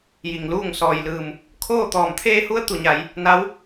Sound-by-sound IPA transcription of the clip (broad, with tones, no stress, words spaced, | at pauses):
ji˩ŋluː˥˨ŋ sɔː˩jlɯː˩m | kʰoː˥˨ t̪ɔː˩mt̪ʰeː˧hu˧˥ə̯ t̪u˧˩ɲa˩˧j | na˧˥w